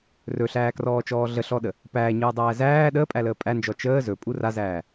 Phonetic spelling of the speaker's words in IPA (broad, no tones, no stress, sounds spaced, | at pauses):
r ɵ ɬ æː k r ɔː t͡ʃ ɔː ɮ ə ɬ ɔ ɗ ə | p æː ɲ ɯː dˤ æː z æː ɗ əː pʼ æ l əː pʼ æ n d͡ʒ ɔ t͡ʃ əː z ɵ pʼ u r a z æː